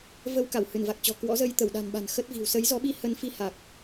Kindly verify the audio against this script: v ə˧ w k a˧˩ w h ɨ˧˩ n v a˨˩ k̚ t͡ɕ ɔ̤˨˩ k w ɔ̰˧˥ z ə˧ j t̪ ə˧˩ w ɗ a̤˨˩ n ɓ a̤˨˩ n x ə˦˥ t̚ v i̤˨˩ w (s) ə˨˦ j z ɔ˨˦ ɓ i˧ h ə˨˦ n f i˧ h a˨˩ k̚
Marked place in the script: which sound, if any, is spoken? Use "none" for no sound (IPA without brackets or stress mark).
s